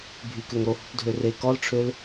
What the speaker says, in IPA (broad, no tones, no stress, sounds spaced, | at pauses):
bʱ y k ø ŋ ɾ o h u p dʱ ø r e k ɔ l ʈ͡ʂʰ ø l